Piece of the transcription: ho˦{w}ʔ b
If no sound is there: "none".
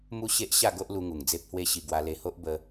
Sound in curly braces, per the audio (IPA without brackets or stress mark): none